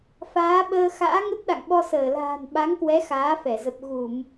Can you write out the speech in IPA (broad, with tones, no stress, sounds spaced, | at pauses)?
f aː˨˦ ɓ əː˧ x a̰ː˧˥ ŋ ə˦˥ t̚ ɗ a̰˧˨ ŋ ɓ ɔ˧ s əː˧˩ l a̤ː˨˩ n ɓ a˨˦ ŋ k w ɛ˨˦ x aː˨˦ f ɛ˧˩ z ə˨˩ p̚ ɣ u˧˩˨ m